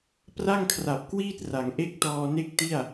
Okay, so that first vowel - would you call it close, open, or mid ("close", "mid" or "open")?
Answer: open